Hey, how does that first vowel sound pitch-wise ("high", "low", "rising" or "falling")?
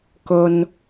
low